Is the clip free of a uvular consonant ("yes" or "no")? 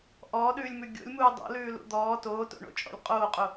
no